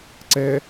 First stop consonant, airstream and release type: click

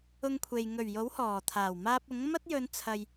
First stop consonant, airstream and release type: aspirated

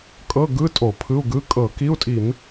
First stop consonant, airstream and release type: ejective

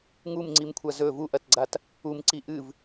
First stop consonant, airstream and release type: click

